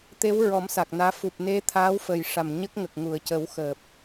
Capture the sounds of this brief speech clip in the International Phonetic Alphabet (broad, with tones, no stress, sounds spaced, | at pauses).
t̪ e˧˥ w ɹ ɔ˨˩˦ m s a˨˩ k̚ n aː˧˥ f u˨˩ p̚ n e˧˥ t̪ʰ aː˧˥ w f əː˨˩ j ʂ a˨˩ m ɲ ə˦˥ k̚ ŋ ə˨˩ k̚ ŋ u˨˩˨ ə̯ c ə˨˩˦ w x əː˨˩ p̚